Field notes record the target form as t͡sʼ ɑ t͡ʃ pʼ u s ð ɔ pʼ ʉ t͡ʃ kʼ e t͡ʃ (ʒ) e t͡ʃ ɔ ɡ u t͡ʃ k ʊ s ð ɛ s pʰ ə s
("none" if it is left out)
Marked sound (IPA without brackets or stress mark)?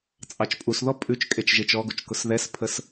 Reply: ʒ